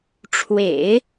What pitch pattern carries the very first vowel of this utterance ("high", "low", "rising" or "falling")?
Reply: low